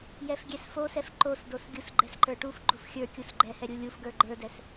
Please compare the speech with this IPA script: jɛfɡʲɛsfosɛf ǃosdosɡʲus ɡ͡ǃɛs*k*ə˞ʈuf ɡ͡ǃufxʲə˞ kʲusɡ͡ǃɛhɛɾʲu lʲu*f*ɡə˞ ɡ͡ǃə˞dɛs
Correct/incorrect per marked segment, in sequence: incorrect, correct

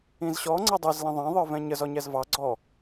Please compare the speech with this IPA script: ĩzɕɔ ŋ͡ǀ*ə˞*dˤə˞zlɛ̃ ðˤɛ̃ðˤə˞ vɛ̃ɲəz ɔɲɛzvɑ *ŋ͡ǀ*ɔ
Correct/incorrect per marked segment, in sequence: incorrect, incorrect

